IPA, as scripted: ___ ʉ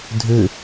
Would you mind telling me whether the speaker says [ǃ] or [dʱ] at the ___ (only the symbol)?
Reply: dʱ